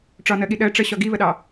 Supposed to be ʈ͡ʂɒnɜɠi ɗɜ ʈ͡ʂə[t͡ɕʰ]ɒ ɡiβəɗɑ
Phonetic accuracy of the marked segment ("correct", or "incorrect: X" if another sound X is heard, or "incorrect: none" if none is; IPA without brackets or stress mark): incorrect: ɕ